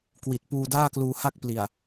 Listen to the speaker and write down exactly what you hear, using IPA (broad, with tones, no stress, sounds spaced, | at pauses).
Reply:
k w i˨˩ t̚ p uː˧ d aː˥˩ k l uː˧ h a˥˩ k̚ p l i˨˩ a̯